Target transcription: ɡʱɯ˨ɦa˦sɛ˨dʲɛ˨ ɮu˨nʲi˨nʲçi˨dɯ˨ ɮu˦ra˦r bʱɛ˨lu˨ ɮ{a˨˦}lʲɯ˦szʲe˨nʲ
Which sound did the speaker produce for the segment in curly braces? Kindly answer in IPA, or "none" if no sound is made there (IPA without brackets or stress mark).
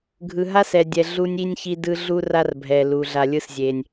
a˨